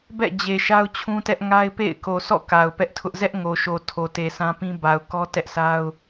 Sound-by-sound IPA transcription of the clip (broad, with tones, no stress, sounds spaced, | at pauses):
b ɛ̰˦˨ d͡ʑ e˨ ʃ a˦ ʊ̯ t͡ɕʰ ũ˦ t ɛ˦ ʔ ŋ a˦ ɪ̯ p ḛ˦˨ ɪ̯ k o˨ s ɔ̰˦˨ k a˨ ʊ̯ p ɛ˦ ʔ tʰ ʊ˦ ʔ z ɛ˦ ʔ ŋ o˨ ʃ o˨ tʰ o˨ t e˨ s ã˦ p ĩ˦ b a˨ ʊ̯ k ɔ˦ t ɛ˦ ʔ s a˦ ʊ̯